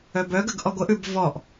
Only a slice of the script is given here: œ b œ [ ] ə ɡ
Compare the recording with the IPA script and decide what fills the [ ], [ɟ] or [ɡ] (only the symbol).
ɡ